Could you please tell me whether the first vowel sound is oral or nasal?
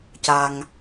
oral